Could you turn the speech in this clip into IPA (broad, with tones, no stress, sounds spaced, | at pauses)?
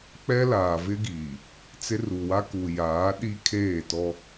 k͡p ɛ˦ l aː˨ v ɪ˦ ɡ iː˨ | t͡s ɪ˦ r u˨ w a˦ k u˨ j aː˨˦ ɗ i˦ kʰ eː˦˨ t ɔ˦